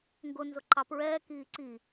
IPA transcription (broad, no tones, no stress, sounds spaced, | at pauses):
ŋ ɡ ʊ n z ʊ ǃ ɑ p ɹ ɛː k iː ǀ i